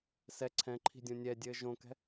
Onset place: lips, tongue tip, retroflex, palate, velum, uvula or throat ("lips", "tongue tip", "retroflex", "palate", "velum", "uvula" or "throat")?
tongue tip